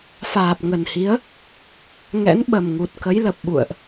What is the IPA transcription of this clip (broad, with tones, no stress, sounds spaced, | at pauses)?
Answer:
f aː˨˩ p̚ ŋ ə˨˩ n h i˨˦ ə̯ | ŋ ɛ̰˧˥ n ɓ ə˨˩ m ŋ u˨˩ t̚ k ə˨˦ j l ə˨˩ p̚ ɓ ṵ˧˨ ə̯ ʔ